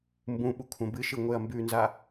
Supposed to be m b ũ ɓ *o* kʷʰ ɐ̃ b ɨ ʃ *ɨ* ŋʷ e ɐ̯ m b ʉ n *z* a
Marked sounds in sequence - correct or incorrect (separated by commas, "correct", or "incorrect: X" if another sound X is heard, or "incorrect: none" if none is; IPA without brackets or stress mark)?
incorrect: u, correct, correct